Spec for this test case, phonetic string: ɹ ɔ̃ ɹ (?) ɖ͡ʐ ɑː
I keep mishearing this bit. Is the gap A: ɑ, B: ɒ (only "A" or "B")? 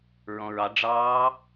A